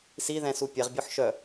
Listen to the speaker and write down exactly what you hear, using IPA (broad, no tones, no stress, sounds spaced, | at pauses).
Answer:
s i ð ɛ̃ s u pʲ ɛ ʁ bʲ ɔ ħ ʃ œ